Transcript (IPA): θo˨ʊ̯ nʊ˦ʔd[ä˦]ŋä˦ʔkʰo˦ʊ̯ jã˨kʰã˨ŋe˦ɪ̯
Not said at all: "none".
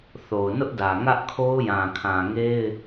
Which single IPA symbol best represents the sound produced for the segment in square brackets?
ä˨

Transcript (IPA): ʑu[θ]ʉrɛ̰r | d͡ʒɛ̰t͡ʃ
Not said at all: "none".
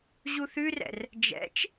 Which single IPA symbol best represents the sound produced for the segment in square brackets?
θ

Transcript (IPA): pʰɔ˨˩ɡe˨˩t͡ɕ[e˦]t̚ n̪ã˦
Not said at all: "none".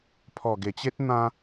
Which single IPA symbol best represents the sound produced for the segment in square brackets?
e˦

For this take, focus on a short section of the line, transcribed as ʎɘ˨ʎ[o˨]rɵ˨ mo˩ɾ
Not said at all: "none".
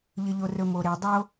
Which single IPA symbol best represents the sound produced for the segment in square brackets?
o˨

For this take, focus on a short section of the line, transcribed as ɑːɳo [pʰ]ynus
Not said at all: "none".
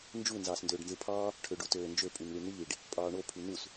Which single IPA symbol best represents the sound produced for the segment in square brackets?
pʰ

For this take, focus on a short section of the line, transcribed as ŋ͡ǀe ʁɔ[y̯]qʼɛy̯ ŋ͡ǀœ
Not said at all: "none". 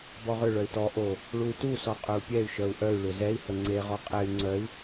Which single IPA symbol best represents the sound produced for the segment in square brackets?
none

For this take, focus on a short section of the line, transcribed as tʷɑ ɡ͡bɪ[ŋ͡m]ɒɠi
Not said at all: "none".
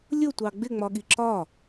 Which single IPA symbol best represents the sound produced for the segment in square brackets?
ŋ͡m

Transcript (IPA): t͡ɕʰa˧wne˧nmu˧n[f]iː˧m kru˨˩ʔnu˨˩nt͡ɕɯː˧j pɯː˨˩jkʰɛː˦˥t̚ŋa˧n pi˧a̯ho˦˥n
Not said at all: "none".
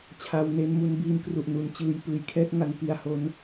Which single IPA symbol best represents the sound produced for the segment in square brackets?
b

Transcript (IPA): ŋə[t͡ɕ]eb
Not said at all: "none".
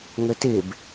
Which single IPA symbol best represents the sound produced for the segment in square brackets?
t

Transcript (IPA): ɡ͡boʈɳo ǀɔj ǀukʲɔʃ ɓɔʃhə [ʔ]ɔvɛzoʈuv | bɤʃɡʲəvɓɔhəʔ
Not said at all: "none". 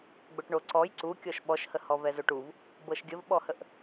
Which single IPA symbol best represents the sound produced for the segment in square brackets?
h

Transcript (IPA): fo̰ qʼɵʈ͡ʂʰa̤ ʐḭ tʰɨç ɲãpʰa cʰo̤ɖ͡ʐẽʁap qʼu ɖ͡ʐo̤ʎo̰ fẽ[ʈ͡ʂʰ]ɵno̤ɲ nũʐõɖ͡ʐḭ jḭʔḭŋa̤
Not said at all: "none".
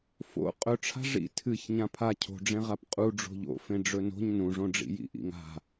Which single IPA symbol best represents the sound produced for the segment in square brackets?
ɖ͡ʐ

